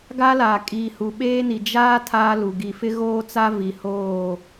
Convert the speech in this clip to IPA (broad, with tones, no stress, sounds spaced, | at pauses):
ɡ a˦ l aː˨ kʼ iː˨ h u˨ ɓ eː˦ n i˨ d͡ʒ aː˦ tʰ aː˦ l u˨ ɡ i˨ f ɪ˦ ɣ oː˦ t͡s a˦ v i˨ h oː˦˨